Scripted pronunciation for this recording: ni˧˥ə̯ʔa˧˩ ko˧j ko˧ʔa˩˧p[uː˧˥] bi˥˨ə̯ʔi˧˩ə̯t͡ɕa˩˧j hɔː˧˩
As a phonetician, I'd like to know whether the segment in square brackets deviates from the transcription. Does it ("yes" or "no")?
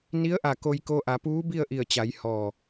no